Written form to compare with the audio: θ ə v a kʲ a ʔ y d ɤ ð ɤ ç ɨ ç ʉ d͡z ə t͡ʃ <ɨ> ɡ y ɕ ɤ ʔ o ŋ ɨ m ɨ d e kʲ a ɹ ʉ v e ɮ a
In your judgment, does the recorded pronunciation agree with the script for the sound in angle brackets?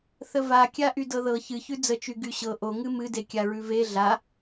no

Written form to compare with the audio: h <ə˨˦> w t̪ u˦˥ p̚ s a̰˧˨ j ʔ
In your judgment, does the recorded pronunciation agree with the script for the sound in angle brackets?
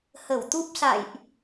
no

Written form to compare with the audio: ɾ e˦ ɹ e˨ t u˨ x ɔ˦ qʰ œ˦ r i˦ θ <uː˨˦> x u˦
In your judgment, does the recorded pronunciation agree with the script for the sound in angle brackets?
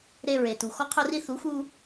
no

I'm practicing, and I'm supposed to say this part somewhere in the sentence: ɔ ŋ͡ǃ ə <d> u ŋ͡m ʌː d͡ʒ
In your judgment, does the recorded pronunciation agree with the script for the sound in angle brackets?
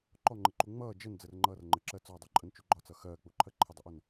no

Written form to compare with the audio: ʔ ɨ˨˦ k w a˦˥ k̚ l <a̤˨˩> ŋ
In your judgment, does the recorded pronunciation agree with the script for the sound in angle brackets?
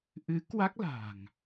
yes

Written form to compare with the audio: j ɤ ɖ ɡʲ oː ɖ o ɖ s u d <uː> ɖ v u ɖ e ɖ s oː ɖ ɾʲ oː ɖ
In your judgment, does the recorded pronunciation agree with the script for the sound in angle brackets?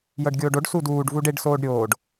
yes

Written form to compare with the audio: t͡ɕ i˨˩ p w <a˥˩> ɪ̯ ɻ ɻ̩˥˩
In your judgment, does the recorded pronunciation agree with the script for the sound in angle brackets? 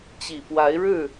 no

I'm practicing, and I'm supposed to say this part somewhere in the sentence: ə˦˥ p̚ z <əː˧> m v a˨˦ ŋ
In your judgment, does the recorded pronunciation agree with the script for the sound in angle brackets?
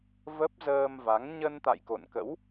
yes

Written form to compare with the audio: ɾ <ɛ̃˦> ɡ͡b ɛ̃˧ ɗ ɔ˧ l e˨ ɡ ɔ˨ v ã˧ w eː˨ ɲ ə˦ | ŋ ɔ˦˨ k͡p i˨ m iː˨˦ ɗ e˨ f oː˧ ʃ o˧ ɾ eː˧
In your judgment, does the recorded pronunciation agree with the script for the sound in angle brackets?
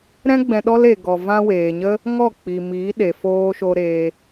yes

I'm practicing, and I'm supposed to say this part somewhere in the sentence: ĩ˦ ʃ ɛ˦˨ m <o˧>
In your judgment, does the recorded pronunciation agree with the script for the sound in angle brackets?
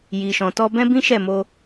yes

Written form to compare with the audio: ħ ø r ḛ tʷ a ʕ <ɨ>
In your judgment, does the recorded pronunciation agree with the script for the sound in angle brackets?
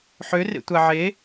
no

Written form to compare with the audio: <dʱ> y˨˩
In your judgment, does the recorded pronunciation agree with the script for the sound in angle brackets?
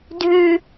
yes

